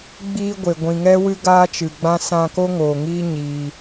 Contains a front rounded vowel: no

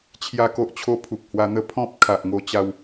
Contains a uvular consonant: no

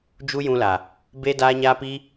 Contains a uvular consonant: no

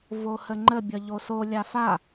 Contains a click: yes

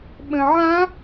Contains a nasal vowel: yes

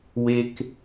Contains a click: no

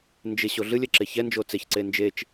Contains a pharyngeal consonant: no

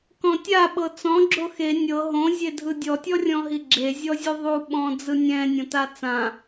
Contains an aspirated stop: no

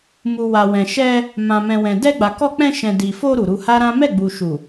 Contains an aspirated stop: no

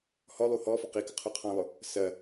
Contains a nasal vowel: yes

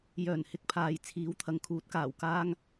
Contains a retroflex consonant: no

